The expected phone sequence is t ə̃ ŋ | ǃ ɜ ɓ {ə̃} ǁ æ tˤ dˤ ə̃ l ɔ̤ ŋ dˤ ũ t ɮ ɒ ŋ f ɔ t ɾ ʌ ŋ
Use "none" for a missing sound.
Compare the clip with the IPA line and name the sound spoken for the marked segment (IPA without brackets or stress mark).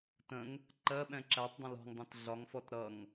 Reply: ɛ̃